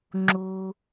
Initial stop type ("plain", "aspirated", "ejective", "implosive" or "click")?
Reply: click